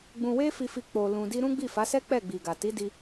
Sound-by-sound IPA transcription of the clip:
ɡ͡b ũ˧ w e˦ f i˧ f i˧ k͡p o˧ l ũ˧ d i˦ ɾ ũ˦ ɡ͡b i˦˨ f a˨˦ s ɛ˦ k͡p ɛ˦˨ ɡ͡b i˨ ɡ a˨ t i˨˦ d i˧

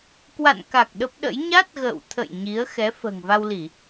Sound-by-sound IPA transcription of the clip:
k w a̰˧˨ n k a˨˩ k̚ ɗ ə˦˥ p̚ ɗ ə̰˧˥ j ɲ a˦˥ t̚ ɣ ə̰ː˧˨ w t̪ʰ ə̰˧˨ j ɲ i˨˦ ə̯ x ɛ˨˦ f ə̤ː˨˩ ŋ v a˧ w l i˧˩˨

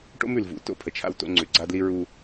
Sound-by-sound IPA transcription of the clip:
ʈ o̰˦ m ʉ˨ l v ṵ˨˦ t o̰˦ pʰ ə˨ t͡ʃʰ a̰˦ w t o̰˦ ŋ͡ǀ ʉ˨ ɡ͡ǀ a˦ d l i˦ ɹ u˦

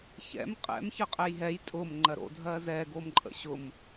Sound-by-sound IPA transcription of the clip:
ç ɛ̰ m qʼ ɛ̰ m ç ɜ qʼ ɛ j ɦ ɛ j tʼ ʊ m ŋ͡ǃ ɜ ɾ o̰ dʱ ɜ z ɛ ɡ o m ǃʼ ə̰ ɕ ʊ m

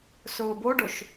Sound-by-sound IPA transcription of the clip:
s ʊː b o ɖ o ʃ

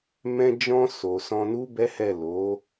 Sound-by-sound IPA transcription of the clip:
m ɛ̃˧ d͡ʒ ɔ̃˧ s o˨ s ɔ̃˧ n u˦ b ɛ˦ h ɛ˦˨ l o˨˦

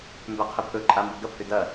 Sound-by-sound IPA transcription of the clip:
m b æ qʰ i pʰ ɵ ǃʼ a m b o ɡ ɐ pʰ ʏ d ɐ

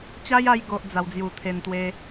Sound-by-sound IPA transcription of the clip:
t͡ɕ a˦ j a˧ j ɡ o˨ ʔ d͡z a˨˩ w d͡z j u˨˩ t̪ʰ e˨˩ n t̪ w e˧

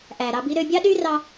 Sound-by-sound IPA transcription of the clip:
ʔ æ˨ ɾ ɑ˧ b i˦ ɾ ø˧ bʲ ɑ˦ ɗ y˦ r ɑ˦

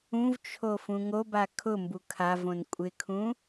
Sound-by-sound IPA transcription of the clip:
ũ v t͡ʃʰ o f ũ ŋ o b a kʰ ʊ m b u kʰ a v õ n kʷʼ ɪ kʰ ũ

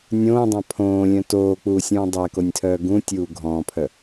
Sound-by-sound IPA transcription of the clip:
nʲ õː dˤ ã pʰ õː lʲ œ̃ t oː k͡p uː sʲ ũː dˤ ɛ k o nʲ tʰ œː ɡ ũ tʲ uː ɡʱ ɔ̃ː pʰ œ

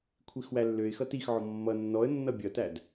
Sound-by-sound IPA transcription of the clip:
kʷʰ i x w æ lː ø ɪ̯ x ʌ t i x ʕ ɔ mː ʌ nː ɔ ə̯ nː ʌ bʲ ʌ t æ d

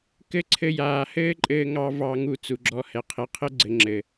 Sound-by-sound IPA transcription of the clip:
k ɘ˦ ǀʰ ɘ˧ j aː˨ h ɘː˦ ǃʼ ɘː˧ ŋ ɑ˧ v ɑ˧ ŋ u˧ t͡s u˨ ɡ͡ǁ ɔ˧ h ɛ˨ qʰ e˧ qʰ ɘ˦ ɡ͡ǀ ɘ˨ ŋ͡ǁ ɘ˨

